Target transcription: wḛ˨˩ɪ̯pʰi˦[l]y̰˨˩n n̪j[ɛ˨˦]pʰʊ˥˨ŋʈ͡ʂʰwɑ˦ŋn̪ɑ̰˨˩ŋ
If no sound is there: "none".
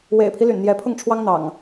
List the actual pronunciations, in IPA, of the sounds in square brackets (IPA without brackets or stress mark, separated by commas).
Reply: l, ɛ˨˦